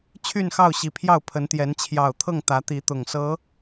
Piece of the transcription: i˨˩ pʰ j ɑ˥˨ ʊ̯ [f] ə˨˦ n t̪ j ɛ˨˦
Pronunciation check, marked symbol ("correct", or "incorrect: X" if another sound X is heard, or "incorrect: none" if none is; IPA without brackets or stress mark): incorrect: pʰ